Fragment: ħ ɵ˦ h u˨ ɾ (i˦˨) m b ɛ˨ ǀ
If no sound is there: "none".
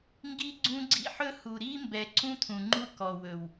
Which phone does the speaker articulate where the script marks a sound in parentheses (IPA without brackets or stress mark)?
i˦